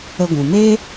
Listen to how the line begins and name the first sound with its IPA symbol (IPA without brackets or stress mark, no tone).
ə